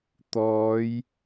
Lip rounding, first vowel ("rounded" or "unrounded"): rounded